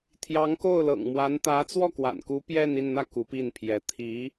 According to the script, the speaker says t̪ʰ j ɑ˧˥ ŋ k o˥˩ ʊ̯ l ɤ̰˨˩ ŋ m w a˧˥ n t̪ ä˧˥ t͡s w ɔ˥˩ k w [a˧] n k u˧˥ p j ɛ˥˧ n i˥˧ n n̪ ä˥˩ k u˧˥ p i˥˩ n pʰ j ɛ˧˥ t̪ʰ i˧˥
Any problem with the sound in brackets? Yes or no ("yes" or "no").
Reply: yes